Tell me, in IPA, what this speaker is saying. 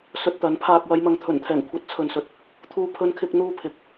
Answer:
sɵ˧t̚t̪ɐ˨˥n pʰaː˨k̚wɐ˨˧jmɐ˨ŋ t̪ʰɵ˨˩nt̪ʰɛː˨˩ŋ kʷʰɐ˨˥t̚t͡sʰɵ˨n sɵ˨t̚ | t̪ʰuː˧pʰɵ˧nkʰɪ˧k̚n̪uː˧ pʰɪ˨k̚

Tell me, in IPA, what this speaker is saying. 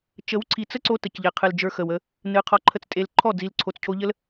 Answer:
t͡ʃə˨˦wǀʰi˨t͡sə˦ǀo˧ tə˨cʎe˨ qʰɨ˨ld͡ʒə˞˧ xə˨wə˧ | nɨ˨˦qʰɔ˧ǃʰə˦t͡stʼe˧l ǃʰɔ˦˨ d͡zi˨lǀʰo˨t͡scʰo˧ʎə˦l

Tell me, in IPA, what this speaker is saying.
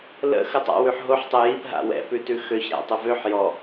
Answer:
lə̰ xətˤa̰ wʉħɦoħ tˤəjip ɦa̰wɛ̰ pʉtʉxøç ɾa̰tˤəvøħ jɔ

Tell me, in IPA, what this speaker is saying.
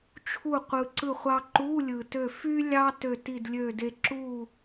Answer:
t͡ʃʰu˥˨ qʷɯ˧ǀɯ˥˨χʷɑ˥ ǃu˧˥˧lʲɯ˩tø˧˩ fy˥ lʲɑ˥ tø˧˩ti˧˩dlʲø˧˩de˧ ǁu˥˨

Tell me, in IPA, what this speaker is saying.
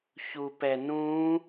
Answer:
çupɛnũ

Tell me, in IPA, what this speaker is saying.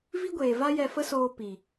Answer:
vi˦ɡʷeː˨va˦ jɛ˧fə˦soː˧ pi˨

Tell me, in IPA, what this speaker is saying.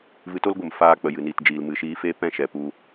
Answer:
vɨ˧to˦lɡʷə˨m faː˧k͡pə˨ jɨ˨niː˨td͡ʒiː˨lmɨ˨ ʃiː˧feː˦p ɛ̃˦˨ʃɛ˨ pu˧

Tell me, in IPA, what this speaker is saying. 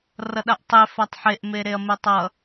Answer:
rʌɗaʔtˤe fatˤħeʔ meɾeɐ̯metˤʌ

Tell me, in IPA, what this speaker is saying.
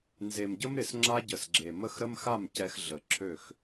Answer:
nze˨mɟə˦mɾɪ˨s ŋ͡ǁa˦ɟə˨sɡ͡ǁe˨ mə˦˨xɾə˦mxa˦˨m cɛ˦x ɮə˨ǁʰø˦˨x

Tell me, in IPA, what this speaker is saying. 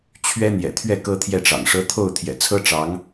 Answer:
t͡ɕʰɥɛ˥ n̪jɛ̰˨˩t̪ʰɥɛ˥˩ kɤ˥t̪ʰjɛ˥˩ʈ͡ʂɑ̰˨˩ŋʂɤ˥ t̪ʰo˥˩ʊ̯ t̪ʰjɛ̰˨˩t͡sʰɤ˥ ʈ͡ʂɑ˧˥ŋ

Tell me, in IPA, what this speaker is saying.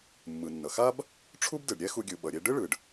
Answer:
mːɯ˩nːʌ˩xa˥b | ʈ͡ʂʰu˥b dɯ˩ɖ ɾʲɛ˥xu˧ɡʲɯ˩ ɓʌ˩ɾʲe˧ ɖɯ˥ɭɯ˩ɖ

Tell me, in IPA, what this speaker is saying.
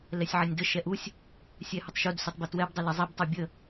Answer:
lɛsʲʕɐnʲdə ʃɛʔusʲ | sʲɛhɐtˤʃud sutˤbətwɛb dˤələzˤib tˤobʲə

